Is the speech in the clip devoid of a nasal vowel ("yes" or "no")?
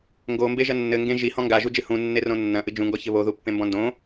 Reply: no